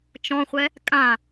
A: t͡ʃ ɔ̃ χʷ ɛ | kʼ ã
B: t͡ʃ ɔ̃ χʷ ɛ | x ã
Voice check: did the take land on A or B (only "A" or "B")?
A